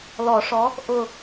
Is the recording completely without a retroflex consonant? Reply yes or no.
no